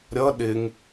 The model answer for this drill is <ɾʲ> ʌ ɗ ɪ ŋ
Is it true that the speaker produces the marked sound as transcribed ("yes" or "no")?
yes